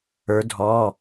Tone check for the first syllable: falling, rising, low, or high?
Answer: rising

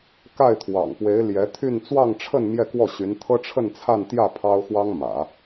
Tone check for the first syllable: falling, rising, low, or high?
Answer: falling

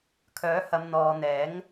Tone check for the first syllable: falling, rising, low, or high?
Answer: rising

